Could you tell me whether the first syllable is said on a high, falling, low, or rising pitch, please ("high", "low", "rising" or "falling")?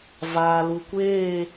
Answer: low